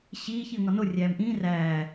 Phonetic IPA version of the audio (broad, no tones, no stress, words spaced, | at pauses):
ɕiːç iə̯ŋɒno rʲæːmʔĩːr æː